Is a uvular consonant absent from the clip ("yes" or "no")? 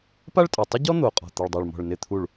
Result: no